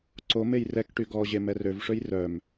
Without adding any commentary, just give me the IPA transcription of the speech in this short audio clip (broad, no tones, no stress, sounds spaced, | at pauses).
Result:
ǀ o m e j r ɛ k ʈ y ɡ ɔ ʑ e m ɛ r ø v ʂ ø j r œ m